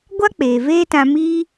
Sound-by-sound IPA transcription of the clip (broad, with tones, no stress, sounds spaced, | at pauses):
ɡʷ a˦ k͡p eː˨ v eː˦ t ã˧ m iː˦